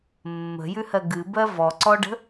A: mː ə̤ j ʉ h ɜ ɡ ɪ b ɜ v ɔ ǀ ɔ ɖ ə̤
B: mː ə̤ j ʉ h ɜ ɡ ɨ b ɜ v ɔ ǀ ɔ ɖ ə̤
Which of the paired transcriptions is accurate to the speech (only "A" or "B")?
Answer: B